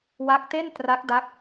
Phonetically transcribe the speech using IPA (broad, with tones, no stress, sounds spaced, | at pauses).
w a˦˥ k̚ t e˥˩ n t r a˦˥ k̚ d a˦˥ k̚